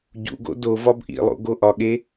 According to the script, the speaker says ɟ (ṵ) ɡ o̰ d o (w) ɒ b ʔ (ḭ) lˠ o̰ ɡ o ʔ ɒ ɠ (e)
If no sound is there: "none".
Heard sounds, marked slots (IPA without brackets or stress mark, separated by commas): ṵ, v, ḭ, e